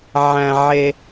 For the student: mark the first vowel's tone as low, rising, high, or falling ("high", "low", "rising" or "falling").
low